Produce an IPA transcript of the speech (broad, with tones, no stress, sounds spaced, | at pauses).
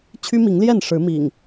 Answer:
t͡ɕʰ y˦ m i˨˦ ŋ l j ɛ˥˨ n ʂ ɻ̩˨˦ m ḭ˨˩ ŋ